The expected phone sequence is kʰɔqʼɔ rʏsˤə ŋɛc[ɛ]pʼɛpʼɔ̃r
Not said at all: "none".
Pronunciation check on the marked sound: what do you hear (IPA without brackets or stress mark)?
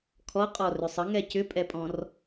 ʏ